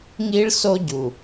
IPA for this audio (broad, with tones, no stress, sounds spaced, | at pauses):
ŋ i˦ ɭ s o˦ ɟ u˨